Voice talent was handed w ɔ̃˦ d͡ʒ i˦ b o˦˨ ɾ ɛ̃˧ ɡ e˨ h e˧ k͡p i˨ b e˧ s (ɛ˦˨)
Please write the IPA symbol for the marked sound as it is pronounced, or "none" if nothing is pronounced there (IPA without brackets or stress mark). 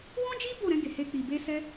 ɛ˧